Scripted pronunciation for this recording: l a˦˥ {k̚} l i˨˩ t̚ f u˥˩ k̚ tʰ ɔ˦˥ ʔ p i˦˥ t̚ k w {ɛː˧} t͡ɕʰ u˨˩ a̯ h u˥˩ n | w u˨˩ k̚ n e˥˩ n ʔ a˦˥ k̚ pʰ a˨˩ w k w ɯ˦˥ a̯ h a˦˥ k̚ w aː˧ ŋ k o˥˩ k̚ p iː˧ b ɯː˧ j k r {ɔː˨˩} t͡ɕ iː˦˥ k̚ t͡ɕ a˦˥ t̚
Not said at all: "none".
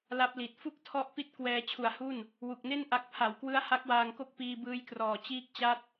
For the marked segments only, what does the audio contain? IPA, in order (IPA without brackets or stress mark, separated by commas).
p̚, ɛː˧, ɔː˨˩